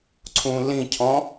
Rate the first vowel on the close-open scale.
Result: close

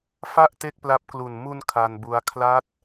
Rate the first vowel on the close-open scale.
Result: open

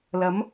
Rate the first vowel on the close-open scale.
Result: open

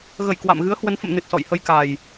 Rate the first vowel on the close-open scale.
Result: mid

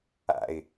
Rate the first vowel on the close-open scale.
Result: open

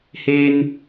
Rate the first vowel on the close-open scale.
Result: mid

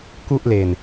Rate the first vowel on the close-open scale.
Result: close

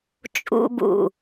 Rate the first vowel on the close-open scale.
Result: close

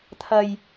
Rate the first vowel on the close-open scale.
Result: open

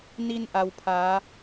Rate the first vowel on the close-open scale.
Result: close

